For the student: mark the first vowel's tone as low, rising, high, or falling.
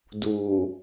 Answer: low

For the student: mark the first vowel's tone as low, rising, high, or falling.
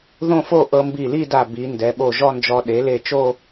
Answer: falling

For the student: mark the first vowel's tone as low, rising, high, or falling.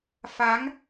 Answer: rising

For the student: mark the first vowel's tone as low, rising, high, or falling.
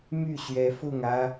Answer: falling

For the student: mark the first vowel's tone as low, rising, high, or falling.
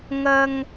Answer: high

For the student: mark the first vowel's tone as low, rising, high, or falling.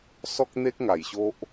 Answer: high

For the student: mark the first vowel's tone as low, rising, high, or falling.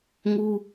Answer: high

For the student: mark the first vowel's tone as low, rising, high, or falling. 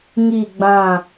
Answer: falling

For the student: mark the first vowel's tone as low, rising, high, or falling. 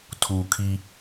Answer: low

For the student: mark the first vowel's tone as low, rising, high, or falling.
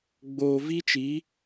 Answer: low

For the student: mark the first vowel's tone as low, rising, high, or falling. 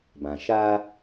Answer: low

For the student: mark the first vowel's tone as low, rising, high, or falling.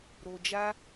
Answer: low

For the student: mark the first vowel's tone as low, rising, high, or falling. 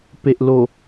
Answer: low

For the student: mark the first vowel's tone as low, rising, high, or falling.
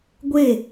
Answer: falling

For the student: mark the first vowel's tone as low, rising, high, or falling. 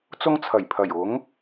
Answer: high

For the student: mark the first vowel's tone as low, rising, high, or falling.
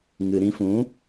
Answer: low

